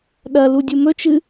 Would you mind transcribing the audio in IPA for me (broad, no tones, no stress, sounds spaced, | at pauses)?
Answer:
ɗ ɐ l u dʲ u m ɵ t͡ʃ ɨ